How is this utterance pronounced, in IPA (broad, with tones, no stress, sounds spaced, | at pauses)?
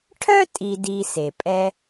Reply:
ʈʰ œ˥ tʼ i˨ d i˨ s e˩ pʼ ɛ˦